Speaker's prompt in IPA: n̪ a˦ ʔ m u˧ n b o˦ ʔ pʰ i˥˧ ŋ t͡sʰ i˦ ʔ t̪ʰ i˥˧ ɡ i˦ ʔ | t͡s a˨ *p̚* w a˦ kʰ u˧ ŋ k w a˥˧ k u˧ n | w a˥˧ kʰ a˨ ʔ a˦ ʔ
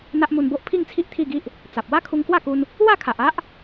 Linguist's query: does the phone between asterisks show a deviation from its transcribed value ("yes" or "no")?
no